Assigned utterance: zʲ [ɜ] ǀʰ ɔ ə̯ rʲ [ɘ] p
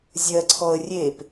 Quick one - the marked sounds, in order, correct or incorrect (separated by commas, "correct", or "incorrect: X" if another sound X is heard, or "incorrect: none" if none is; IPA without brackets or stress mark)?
correct, incorrect: e